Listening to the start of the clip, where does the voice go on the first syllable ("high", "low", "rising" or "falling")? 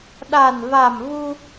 low